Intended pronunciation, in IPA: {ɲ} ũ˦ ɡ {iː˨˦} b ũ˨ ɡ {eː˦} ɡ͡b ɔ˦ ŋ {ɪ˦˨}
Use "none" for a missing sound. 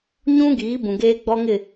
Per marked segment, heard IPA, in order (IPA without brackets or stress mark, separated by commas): ɲ, iː˨˦, eː˦, ɪ˦˨